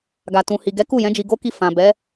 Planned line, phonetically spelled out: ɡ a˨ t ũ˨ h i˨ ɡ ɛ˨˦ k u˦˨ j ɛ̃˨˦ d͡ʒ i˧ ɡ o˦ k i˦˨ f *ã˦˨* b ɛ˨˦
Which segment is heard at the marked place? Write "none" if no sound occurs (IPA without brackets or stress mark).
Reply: ã˨